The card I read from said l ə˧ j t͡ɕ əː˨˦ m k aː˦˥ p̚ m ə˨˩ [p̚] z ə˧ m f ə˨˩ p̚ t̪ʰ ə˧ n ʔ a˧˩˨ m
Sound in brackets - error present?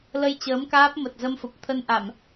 yes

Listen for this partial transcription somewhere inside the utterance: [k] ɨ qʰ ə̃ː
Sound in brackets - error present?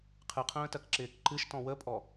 yes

